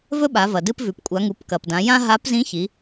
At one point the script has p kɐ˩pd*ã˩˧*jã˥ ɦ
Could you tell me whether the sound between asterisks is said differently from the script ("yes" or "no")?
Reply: no